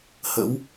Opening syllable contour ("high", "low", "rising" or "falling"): rising